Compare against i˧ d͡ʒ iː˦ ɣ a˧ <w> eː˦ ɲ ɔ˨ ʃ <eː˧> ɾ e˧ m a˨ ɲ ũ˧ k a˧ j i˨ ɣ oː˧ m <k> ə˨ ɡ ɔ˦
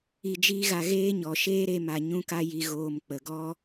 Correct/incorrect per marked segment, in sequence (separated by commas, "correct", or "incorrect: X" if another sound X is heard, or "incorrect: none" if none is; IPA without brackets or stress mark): incorrect: ɣ, incorrect: eː˦, incorrect: k͡p